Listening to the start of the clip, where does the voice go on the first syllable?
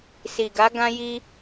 low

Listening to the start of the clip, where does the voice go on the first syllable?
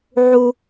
high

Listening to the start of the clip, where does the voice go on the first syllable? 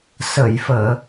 low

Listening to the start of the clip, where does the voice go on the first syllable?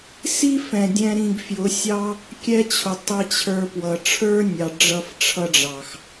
high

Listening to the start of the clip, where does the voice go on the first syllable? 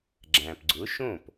low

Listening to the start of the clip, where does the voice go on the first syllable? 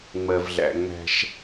low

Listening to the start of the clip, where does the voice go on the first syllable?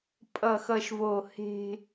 low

